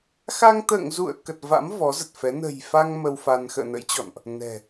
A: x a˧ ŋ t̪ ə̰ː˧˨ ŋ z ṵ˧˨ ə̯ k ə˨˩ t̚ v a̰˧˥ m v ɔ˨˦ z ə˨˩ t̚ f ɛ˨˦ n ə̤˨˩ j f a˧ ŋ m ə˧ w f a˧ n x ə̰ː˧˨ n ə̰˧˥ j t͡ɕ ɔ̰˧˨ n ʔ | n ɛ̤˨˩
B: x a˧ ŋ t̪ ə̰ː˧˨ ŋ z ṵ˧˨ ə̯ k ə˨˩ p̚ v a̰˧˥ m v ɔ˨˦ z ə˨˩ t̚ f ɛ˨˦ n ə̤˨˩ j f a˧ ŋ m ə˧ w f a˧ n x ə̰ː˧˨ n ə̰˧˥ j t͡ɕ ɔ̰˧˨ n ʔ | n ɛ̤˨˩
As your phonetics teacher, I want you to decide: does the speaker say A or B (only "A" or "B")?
A